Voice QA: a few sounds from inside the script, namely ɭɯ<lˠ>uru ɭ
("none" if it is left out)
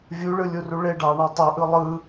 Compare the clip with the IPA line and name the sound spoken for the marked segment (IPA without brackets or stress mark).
lʲ